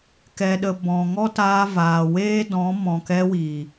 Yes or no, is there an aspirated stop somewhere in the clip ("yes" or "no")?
no